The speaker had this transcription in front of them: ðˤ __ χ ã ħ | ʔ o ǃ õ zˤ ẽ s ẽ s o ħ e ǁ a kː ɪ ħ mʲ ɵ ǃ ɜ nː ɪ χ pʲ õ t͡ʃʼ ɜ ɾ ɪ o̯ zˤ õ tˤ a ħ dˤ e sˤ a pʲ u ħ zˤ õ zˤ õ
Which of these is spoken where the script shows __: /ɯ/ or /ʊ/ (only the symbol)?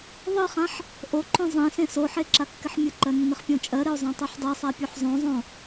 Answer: ɯ